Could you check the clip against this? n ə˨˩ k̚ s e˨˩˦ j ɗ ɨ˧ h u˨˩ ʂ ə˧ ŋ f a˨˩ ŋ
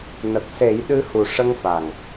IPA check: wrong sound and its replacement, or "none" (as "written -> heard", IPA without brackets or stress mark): none